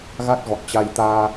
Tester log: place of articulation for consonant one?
velar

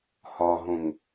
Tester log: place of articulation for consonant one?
glottal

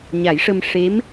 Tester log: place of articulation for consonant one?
palatal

